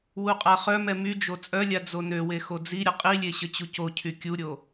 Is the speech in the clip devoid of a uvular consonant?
no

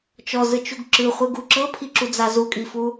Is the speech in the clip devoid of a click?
no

